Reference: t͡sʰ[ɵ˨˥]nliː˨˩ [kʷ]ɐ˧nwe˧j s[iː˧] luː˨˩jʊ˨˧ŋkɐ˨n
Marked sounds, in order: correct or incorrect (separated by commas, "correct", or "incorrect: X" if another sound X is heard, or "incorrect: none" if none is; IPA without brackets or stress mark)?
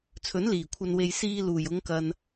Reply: correct, incorrect: kʷʰ, correct